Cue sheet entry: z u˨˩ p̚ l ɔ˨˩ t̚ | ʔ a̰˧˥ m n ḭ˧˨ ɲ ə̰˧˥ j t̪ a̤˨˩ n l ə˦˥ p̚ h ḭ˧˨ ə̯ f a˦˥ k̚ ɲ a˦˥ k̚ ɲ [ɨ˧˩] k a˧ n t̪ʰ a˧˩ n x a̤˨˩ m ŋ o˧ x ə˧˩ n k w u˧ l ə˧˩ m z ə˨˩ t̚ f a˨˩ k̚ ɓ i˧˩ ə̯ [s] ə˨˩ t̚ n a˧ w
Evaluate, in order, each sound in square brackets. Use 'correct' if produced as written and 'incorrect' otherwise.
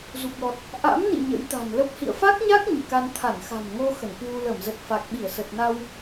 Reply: correct, correct

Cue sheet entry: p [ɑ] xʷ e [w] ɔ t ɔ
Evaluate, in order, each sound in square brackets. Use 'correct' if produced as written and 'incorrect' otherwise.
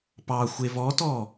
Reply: correct, incorrect

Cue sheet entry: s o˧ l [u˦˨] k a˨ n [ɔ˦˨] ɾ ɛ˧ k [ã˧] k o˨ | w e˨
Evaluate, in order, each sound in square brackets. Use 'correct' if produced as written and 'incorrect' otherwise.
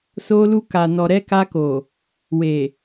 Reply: incorrect, incorrect, incorrect

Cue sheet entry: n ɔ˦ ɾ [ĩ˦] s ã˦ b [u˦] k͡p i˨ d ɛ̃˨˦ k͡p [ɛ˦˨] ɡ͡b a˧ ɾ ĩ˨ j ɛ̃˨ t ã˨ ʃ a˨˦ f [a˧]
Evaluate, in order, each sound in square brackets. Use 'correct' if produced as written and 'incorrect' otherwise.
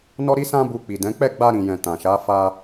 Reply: incorrect, incorrect, correct, correct

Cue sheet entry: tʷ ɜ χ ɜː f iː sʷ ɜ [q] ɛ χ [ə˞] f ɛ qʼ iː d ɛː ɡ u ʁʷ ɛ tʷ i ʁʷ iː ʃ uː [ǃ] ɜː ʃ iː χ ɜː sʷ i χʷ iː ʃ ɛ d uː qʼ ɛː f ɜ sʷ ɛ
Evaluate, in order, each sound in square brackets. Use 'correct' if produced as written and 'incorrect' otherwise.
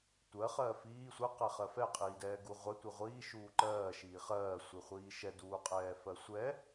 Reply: correct, incorrect, correct

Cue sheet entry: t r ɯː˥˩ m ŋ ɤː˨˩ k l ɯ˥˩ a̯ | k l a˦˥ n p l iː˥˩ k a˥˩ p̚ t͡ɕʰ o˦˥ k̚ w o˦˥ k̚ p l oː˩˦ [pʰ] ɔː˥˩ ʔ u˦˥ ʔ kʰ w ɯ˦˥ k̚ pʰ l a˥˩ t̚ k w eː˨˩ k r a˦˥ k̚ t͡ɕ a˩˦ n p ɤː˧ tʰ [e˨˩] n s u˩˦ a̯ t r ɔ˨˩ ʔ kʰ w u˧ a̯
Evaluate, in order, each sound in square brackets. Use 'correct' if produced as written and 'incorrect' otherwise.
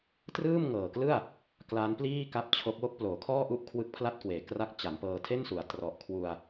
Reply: incorrect, incorrect

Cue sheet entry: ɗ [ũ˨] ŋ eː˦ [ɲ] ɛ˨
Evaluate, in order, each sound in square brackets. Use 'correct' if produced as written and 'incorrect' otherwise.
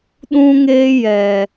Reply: incorrect, incorrect

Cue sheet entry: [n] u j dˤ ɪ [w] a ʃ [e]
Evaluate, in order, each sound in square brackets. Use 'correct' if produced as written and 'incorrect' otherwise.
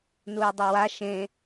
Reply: correct, correct, incorrect

